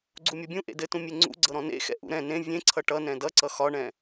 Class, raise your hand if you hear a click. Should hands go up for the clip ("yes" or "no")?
yes